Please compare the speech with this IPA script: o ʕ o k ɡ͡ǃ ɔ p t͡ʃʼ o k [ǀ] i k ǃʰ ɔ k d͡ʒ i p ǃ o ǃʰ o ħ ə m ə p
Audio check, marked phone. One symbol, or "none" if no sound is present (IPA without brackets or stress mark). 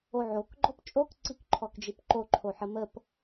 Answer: ǀ